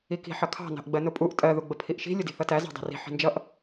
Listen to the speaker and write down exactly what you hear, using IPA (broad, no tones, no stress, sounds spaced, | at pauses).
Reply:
i k i̤ ħ ʌ kʰ ɑ̤ n ɑ̤ ʔ ɡ͡b ɜ n ʊ pʼ u ʔ tʼ ɜ ð u ɡ͡b ə pʰ i ʔ ʃ i̤ lʲ ʊ d i̤ θ ʌ t æ z ɑ̤ dˤ i̤ r i̤ ħ i̤ n d͡ʒ ʌ ʔ